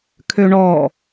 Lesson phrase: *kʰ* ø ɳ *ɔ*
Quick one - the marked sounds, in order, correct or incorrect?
correct, correct

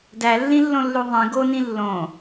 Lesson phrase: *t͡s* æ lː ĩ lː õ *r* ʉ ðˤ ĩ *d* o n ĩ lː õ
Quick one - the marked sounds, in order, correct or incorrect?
incorrect, incorrect, incorrect

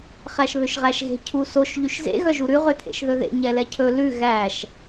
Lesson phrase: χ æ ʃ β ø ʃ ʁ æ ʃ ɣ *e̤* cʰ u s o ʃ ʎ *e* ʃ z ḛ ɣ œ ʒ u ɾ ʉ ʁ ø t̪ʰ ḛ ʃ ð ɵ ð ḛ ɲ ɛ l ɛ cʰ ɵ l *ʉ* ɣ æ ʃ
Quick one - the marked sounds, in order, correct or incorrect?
correct, incorrect, correct

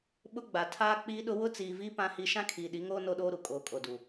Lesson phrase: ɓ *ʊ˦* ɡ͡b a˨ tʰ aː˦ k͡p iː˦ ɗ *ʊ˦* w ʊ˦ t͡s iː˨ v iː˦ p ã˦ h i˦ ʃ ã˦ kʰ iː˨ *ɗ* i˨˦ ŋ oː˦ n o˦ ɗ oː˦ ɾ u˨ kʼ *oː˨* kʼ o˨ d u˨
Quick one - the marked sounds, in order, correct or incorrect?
correct, correct, correct, correct

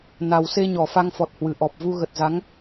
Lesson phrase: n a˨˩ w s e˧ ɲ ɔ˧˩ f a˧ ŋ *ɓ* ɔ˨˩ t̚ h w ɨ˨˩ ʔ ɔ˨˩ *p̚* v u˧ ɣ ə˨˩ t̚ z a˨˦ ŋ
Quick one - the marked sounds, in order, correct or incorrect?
incorrect, correct

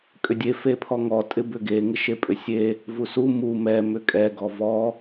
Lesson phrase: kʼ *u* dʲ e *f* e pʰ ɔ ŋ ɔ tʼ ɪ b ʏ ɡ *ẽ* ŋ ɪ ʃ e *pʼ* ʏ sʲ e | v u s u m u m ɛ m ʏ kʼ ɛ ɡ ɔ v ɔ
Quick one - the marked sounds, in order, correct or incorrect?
incorrect, correct, incorrect, correct

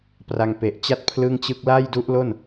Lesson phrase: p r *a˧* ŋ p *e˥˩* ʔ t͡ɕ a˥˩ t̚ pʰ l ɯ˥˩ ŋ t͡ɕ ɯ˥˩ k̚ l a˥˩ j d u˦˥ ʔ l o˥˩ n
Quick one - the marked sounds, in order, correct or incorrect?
correct, incorrect

